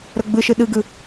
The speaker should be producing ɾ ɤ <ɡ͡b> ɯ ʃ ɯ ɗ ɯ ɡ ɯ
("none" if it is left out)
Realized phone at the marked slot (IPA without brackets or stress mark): ɡ͡b